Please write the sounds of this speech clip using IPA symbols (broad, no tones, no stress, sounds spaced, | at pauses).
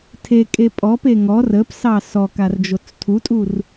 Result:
tʰ e kʼ e pʼ ɔ p e ŋ ɔ r ə p s ɑ s ɔ k a r d͡ʒ o t͡s tʰ u tʼ u r